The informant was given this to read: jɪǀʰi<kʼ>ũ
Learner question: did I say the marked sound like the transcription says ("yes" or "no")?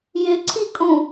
yes